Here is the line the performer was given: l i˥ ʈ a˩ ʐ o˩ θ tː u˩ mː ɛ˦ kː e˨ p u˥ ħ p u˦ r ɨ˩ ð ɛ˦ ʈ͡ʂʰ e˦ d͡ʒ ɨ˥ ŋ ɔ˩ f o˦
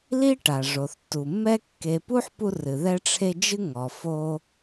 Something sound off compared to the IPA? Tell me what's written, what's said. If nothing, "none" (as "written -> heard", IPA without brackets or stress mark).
none